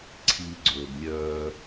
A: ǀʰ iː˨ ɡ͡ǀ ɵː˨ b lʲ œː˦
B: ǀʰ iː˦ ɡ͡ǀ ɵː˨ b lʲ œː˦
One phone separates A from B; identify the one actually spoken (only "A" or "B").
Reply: A